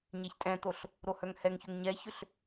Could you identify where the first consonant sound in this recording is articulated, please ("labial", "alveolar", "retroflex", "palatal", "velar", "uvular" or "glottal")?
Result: palatal